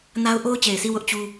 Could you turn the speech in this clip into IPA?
n a˦ ʊ̯ ʔ o˦ ʊ̯ t͡ɕ e˨ ɪ̯ sʰ i˦˨ w ʊ˦ ʔ t͡ɕ u˦

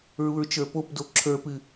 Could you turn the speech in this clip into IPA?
ɹ u ɹ t͡ʃ ə˞ p o p d o ǁʰ ə˞ p ɨ

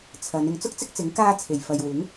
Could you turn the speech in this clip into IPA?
t͡sʰ ɐ˨˧ n ɪ˨˧ ŋ t͡s ʊ˥ k̚ t͡s ɪ˥ k̚ t͡s ɪ˨˥ ŋ k aː˧ t͡sʰ e˨˩ j f ɐ˨ j w ɪ˨˥ ŋ

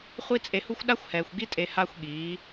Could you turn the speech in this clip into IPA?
χʷ i˦ t͡sʼ e˧ h u˦ xʷ ɗ a˦ xʷ h ɛː˨ xʷ ɡ i˦ tʼ e˧ h a˦ xʷ ɠ iː˨˦

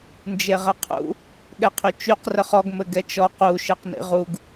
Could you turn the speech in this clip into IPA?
n d͡ʒ e ʁ ɘ qʰ ṵ | ɠ ɛ qʰ y t͡ʃ y q r ə χ ɔ ɡ m ɘ ɡ ɛ t͡ʃ ɔ q u ʃ ɘ q n ḭ ʁ u ɡ

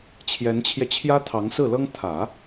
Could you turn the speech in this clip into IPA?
t͡ɕʰ j ɛ˧˥ n t͡ɕʰ j ɛ˧ t͡ɕʰ j ä˥ t̪ʰ ɑ˧˥ ŋ s ɹ̩˥˩ l ɤ˥ ŋ t̪ʰ ä˨˩˦

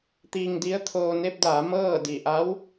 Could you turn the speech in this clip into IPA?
t̪ iː˧ ŋ d i˧˥ ə̯ t̪ʰ oː˧ n e˧ p̚ d aː˩˧ m ɤː˥˨ d i˧˩ ʔ a˧˥ w

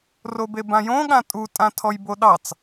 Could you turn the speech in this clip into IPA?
r o b e b ã j õ ɠ ã tʼ u tʼ ã tʰ ɔ j b o ɗ ɑ t͡s

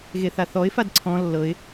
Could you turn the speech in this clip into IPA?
ɣ e θ a θ ɔ ɪ̯ f a d ǀʰ ɔ̃ lː ɤ ɪ̯

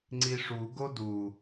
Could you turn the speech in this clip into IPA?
ŋ͡ǀ i ʂ u ɡ o d u

